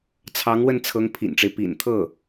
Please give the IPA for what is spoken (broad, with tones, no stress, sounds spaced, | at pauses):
t͡sʰ ɑ˧˥ ŋ w ə˥˩ n t͡sʰ ɤ˧˥ ŋ pʰ ḭ˨˩ n ʈ͡ʂ e˦ ɪ̯ p ḭ˨˩ n t̪ʰ ɤ˥˩